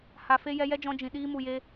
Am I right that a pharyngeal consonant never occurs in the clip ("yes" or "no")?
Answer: yes